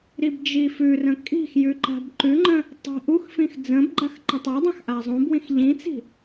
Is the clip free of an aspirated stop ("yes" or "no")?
yes